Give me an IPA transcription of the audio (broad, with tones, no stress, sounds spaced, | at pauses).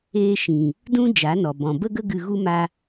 eː˦ ʃ ĩ˨ | d ũ˦ d͡ʒ a˨˦ n ɔ˨ b ɔ̃˨ b ə˦ ɡ ə˦ ɡ ɨ˧ ɣ u˦ m a˧